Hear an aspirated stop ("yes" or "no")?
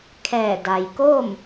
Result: yes